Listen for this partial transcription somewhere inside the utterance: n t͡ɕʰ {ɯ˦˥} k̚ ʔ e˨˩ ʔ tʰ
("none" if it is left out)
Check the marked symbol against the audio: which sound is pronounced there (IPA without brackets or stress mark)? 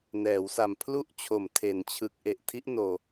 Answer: ɯ˨˩